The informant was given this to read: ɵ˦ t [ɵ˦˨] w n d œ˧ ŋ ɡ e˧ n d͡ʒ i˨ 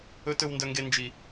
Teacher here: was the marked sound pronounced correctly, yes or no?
no